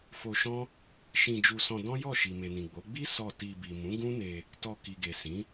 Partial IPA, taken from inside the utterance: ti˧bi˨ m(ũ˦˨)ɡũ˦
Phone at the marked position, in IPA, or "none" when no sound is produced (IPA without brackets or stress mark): ũ˨˦